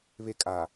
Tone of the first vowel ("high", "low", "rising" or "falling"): high